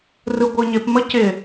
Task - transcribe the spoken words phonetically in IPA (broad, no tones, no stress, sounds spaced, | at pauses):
r ɯ ɡʷ ɯ ɲ ɪ p m ə c ɪ